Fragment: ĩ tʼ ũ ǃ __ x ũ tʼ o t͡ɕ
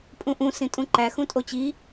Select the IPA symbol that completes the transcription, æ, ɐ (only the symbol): æ